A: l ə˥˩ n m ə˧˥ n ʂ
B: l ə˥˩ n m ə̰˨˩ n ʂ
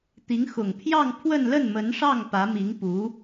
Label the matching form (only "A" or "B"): A